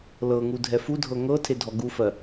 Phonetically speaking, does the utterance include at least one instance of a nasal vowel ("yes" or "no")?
no